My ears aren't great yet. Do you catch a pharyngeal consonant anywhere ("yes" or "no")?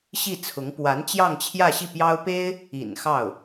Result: no